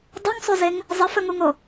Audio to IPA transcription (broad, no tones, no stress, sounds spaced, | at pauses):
dˤ u ŋ sˤ u z e ŋ | zˤ ə f ə ŋ u ŋ o